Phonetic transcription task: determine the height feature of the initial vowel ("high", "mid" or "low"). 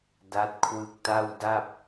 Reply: low